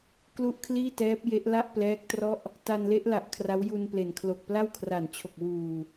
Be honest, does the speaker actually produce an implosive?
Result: no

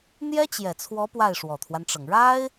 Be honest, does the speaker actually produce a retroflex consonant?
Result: yes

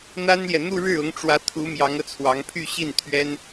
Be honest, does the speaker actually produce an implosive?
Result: no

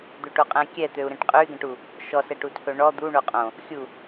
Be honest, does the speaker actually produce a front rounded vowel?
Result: yes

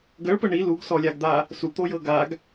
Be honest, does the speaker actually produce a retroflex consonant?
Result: yes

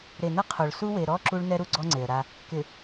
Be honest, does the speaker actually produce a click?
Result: yes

